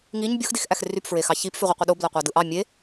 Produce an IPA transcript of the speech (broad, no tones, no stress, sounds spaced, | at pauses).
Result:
ŋ i ɲ bʲ o x d i x ʔ æ x r y p f ɹ e x ɑ ç i p f y ʁʷ i qʷ i ɗ o b l æ qʷ ɑ d ɯ ʔ ɑ mʲ e